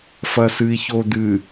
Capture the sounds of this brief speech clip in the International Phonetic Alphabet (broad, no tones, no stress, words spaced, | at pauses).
fɐsɨi̯çod̪ɨ